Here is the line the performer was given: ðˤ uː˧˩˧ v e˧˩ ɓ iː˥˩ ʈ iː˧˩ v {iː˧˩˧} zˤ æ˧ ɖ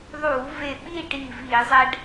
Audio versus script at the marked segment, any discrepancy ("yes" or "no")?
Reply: no